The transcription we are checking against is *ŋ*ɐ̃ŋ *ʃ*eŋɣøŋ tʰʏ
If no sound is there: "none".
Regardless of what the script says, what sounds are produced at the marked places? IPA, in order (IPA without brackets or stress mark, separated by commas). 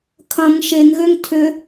kʰ, ʃ